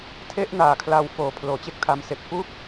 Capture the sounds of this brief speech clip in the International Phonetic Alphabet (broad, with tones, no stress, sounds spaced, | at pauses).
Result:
tʰ e˦˥ ʔ n aː˨˩ kʰ l a˧ w f oː˨˩ pʰ l oː˩˦ t͡ɕ e˦˥ k̚ tʰ a˧ m s e˨˩ k̚ p u˦˥ k̚